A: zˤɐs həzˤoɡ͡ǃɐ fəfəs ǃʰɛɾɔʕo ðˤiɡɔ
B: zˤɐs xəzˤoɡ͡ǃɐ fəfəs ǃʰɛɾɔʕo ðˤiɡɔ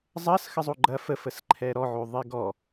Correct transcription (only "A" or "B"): B